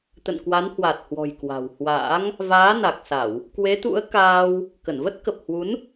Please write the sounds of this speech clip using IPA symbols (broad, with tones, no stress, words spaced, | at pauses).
t̪ə̰˧˨nkwa˨˦nhwa˨˩t̚hwɔ̤˨˩j kwa̤˨˩whwa̰ː˧˥ŋ | vaː˨˦na˨˩k̚sa˧˩˨w | kwe˨˦t̪ṵ˧˥ə̯kaː˧w | kə˧˩nvə˦˥t̚kə˨˩p̚hwu˨˦n